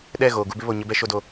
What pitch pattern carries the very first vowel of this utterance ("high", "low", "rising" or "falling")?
falling